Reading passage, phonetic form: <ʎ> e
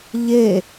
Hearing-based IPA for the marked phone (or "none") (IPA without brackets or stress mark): ʎ